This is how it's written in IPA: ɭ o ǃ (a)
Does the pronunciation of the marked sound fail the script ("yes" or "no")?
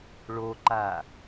no